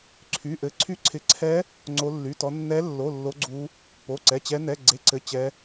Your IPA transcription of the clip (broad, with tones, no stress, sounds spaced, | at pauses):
ǀʰ y˧˥˧ ʔ ɘ˦˥ ǀʰ y˦˥ ǀʰ ɪ˧˥˧ ǀʰ ɛ˦˥ | ŋ͡ǀ o˦˥ lː y˧˥˧ t ɔ˦˥ nː ɛ˦˥ lː o˧˥˧ lː o˦˥ ɡ͡ǀ u˦˥ | p o˧˥˧ ǀ ɛ˧˥˧ t͡ɕ ɛ˦˥ n ɛ˧˥˧ ɡ͡ǀ e˧˥˧ ǀ ɘ˧˥˧ t͡ɕ ɛ˦˥